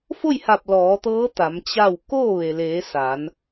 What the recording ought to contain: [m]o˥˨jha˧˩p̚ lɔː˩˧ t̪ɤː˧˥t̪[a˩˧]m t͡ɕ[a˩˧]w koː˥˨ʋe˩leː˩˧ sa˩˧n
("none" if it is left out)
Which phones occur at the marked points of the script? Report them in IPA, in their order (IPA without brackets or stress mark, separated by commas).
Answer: f, a˩˧, a˥˨